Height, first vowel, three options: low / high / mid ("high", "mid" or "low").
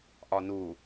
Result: low